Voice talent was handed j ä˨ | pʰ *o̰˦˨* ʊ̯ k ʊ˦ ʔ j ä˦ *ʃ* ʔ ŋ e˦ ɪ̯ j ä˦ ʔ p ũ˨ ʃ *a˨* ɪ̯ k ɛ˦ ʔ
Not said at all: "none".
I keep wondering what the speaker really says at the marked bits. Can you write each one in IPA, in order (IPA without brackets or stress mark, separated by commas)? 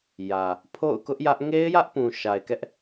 o̰˦˨, none, a˨